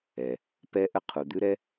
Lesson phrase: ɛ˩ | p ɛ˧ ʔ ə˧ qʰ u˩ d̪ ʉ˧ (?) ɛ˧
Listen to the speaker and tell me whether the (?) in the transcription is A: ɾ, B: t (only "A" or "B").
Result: A